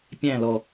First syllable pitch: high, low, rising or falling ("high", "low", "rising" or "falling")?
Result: falling